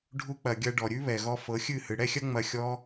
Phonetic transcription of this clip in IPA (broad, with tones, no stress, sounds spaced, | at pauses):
ɖʱ u˧ k͡p ɐ˨ ɡʲ ɐ˧ ɖ ɔ˨ ɾʲ ʉ˦ β ɛ˨ ɣ ɔ˧ f ɤ˨˦ xʲ ɨ˦˨ h ɨ˨ ɽ ɛ˦ xʲ ɐ˦ ŋ͡m ɐ˧ xʲ ɔ˦